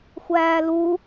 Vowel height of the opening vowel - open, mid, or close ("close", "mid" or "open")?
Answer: open